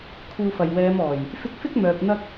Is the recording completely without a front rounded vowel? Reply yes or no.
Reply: no